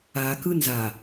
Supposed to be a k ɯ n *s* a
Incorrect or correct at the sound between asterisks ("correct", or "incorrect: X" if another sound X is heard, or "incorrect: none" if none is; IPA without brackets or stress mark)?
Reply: incorrect: z